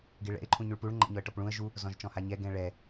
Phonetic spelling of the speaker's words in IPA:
ɡeɭɛ̰ɪ̯ ǃʰũɲʉɭpuɭ ŋ͡ǃɛ̰ɲɔə̯ʈɔpɭũə̯ ʒu | zɔ̃ʒt͡ʃɔ̃haɲɛ ɡɛ̃ɭɛ

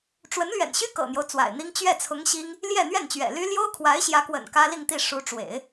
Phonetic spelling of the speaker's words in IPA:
ʈ͡ʂwə˧˥nlɥɛ̰˨˩nɕy˥ kɤ̰˨˩n̪jo˦ʊ̯ t͡swa̰˨˩ɪ̯n̪i˥ŋ t͡ɕɥɛ˥˩t͡sʰʊ˧˥ŋ ɕi˥ŋ | ljɛ˥˧n̪ɥɛ˥˩nt͡ɕɥɛ̰˨˩ly˥ ljo˥ʊ̯kʰwa˧˥ɪ̯ɕjä˧˥kwə̰˨˩n kä˥li˥˧ŋt̪i˥˩ ʂu˧˥ʈ͡ʂwḛ˨˩˦ɪ̯

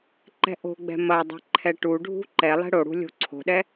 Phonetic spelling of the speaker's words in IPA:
ǃɛ̤ʔo̤ɡ͡bɛ̤ mɐdˤɛ̤ ǃʰɛʈuɖʱṳ ǃɛlˠɛ̤ ɽoɽṳ lʲo̤ǀʰo̤ɗɛ

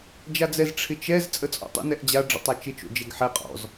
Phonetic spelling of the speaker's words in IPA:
d͡ʒad͡zɛz ʈ͡ʂʰɪt͡ʃɛz t͡sʼət͡sʼɔ̰tˤə̰ nɛʔd͡ʑa ɖ͡ʐə̰tˤat͡ʃɪ t͡ʃo̰d͡ʒɛɡħɛ qʼɔ̰z

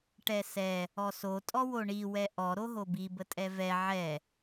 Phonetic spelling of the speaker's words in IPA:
ʈɛsɛ | ɔso tʼɔwoɳi wɛʔɔ ɾoɦobi bətʼɛvɛ ʕɛ

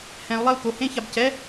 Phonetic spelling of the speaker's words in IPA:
hɛ̃u̯lˠɛu̯ ko hẽçab cɛ

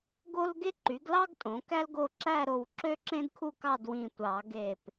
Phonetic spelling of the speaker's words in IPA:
ɡo˥lɡe˥ ǃy˩˥ɡlɑ˥ɡ tʼõ˩˥kæ˥lɡo˥˨ ǁæ˥˨ɾo˧˩w ǁø˥ǁẽ˥dkʰu˥˨ kɑ˥˨dwĩ˧˩tʷɑ˨˩˦ɡe˧˩p

